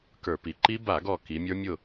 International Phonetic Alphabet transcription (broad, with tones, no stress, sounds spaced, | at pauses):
k ə˞˧˩˧ p i˩˧ ǃ i˦˥ b a˧˩˧ ɡ ɔ˧˩ k i˩˧ mʲ ə˞˦˥ mʲ ʊ˥˨